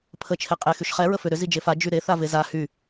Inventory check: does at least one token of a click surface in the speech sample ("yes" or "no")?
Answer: no